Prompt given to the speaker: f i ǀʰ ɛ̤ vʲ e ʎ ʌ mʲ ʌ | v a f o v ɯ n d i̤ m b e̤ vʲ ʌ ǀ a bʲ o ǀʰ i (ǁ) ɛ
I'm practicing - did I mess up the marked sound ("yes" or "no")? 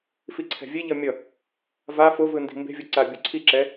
no